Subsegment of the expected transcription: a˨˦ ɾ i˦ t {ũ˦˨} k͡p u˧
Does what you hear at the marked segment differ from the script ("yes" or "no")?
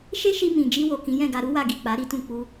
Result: no